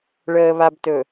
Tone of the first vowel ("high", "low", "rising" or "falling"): low